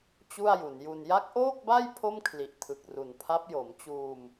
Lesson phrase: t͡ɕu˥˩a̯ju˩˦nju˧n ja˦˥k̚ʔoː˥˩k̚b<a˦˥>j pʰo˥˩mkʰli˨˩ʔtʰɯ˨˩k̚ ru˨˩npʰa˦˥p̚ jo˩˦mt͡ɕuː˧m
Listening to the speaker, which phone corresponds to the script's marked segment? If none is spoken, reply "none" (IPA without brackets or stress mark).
a˥˩